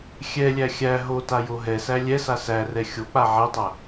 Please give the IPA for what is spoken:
xʲɛlʲæ xʲæ ɦotajo ɦɛsæ lʲɛsa særɛ xʲok͡pa ʕɛtˤæ

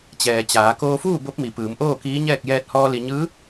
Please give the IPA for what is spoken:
t͡ɕɛː˩t͡ɕaː˩˧ koː˧fuː˥˨ bo˧˥p̚mi˩ pɯː˩˧mʔoː˥˨kiː˧˥ɲɛː˥˨k̚ jɛː˧t̚hɔː˧ li˧ ɲɯː˧˥

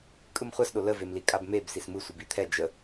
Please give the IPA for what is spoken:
kʼɯmχʷasɗo ləvemli kʼabmeb sismɯ sʷibit̪ʰɛ d͡ʒə

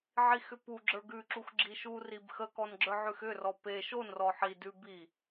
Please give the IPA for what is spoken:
ʕixʏpu ɡ͡ǁə˞ɡʉ ǁuxɡ͡ǁiʃu ribxə kɔnɡ͡ǁə˞ʕʉxʏ rɔpe ʃon rɔħi dʉ bi

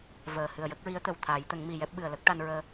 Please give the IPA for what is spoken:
vəː˨˩ hɨ˨˩ə̯jə˦˥k̚ɹi˧˥ə̯t̪ə˨˩w t̪ʰaː˨˩˦jt̪ə˨˩˦ŋmi˨˩ jɛ˦˥p̚ɓɨ˨˩ə̯lə˦˥k̚ ʈa˧nɹəː˧

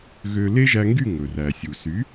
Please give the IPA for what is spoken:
ɣø˧ le˥ʒæ˧ŋɡy˥˩ ŋɵ˩ræ˩sʲu˩ sy˩˥

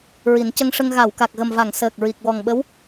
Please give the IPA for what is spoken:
ɹi˨˩˦n cə˧ŋʂə˧ŋ ɣa˨˩˨wka˨˩k̚ɣə˨˩mva˨˩˨ŋ səː˨˩k̚ɹi˨˩k̚ wɔ˨˩ŋ ɓə˧˥w

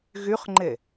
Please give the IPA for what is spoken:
ɣyχŋ͡ǃe

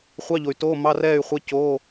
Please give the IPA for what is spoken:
χʷɑ˧˥˧ʎo˨y̯ to˧˥˧ mɑ˧˥˧rɛː˥˨y̯χʷɛ˧˥˧ coː˧˥˧

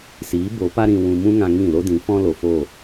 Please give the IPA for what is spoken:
siː˨˦ bo˨˦pa˦ɾĩ˧ wũ˧mũ˦ŋã˧ ŋĩ˦˨lo˦ dĩ˨˦ fɔ̃˦lo˨foː˦˨

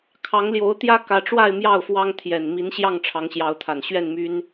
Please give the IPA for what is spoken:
kʰɑ˨˦ŋljo˨˦ʊ̯ t̪jä˦kä˨˦ʈ͡ʂwa˥˨ɪ̯ mjɑ˥˨ʊ̯fwɑ˦ŋ t̪ʰjɛ˨˩n mi˨˦n ɕjɑ˥˨ŋʈ͡ʂʰɑ˨˦ŋɕjɑ˨˦ʊ̯t̪ʰa˨˩n ɕɥɛ˥˨nmy˦n

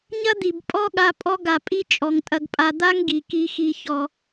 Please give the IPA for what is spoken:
ɲɐ˦d̪i˨b pʼɔ˦ɠa˧ pʼɔ˧ɡa˨pʼi˧ t͡ʃʼɔ˨ŋtʼɐ˧ɡpʼa˧ d̪a˦ŋɡi˨ki˧xi˧ çɔ˧

